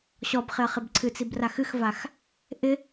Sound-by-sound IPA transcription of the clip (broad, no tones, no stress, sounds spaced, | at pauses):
ɕ ɔ b χ ɪ ɐ̯ χ ɪ b ǀʰ ɨ t͡s i b r a x ɨ x v a x | ʔ ɪ